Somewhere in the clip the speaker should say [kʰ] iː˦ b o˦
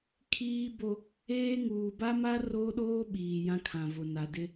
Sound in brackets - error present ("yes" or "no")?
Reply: no